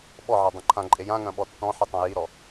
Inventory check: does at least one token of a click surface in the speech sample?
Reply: yes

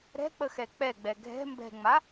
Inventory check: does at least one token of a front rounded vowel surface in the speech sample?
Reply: no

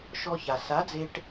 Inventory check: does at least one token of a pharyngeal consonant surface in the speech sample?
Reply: no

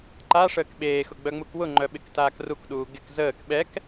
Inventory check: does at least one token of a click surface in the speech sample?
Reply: yes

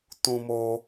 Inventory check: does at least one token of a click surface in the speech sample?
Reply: no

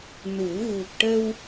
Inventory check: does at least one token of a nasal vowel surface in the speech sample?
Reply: no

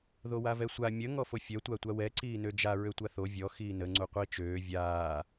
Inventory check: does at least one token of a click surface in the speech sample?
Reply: yes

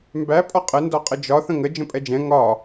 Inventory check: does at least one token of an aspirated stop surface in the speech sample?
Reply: no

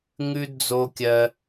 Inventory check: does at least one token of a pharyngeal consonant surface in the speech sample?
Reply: no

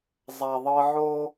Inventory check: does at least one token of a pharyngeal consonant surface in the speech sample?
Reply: yes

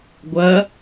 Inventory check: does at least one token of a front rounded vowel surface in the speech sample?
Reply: no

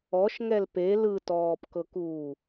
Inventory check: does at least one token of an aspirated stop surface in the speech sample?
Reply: no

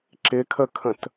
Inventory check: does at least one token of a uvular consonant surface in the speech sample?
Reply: no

